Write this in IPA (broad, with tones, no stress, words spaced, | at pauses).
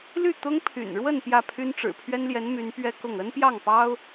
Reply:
ly˥˩ t̪ʊ˥ŋpʰy̰˨˩nɻwə˥˧n pjä˥˩pʰy˥nʈ͡ʂɻ̩˨˩ pʰɥɛ˥nljɛ˧˥n my˧˥npɥɛ˥ kʊ˥˩ŋ ə˥npjɑ˥˩ŋpɑ˥ʊ̯